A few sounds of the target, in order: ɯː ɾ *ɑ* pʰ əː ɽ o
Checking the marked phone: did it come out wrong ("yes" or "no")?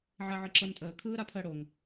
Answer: yes